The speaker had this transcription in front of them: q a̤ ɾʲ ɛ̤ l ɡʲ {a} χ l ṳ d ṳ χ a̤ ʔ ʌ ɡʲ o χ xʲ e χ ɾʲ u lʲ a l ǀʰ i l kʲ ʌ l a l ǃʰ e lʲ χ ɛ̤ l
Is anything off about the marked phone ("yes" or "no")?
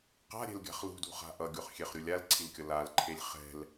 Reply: yes